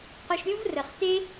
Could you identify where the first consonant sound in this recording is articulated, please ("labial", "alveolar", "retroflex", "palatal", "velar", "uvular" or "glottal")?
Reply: uvular